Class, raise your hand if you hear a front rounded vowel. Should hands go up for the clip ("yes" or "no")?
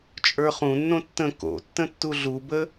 no